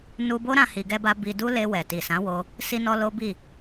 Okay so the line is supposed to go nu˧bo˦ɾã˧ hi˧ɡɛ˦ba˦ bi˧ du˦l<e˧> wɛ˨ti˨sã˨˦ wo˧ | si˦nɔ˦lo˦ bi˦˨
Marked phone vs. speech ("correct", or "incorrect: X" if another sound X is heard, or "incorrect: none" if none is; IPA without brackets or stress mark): correct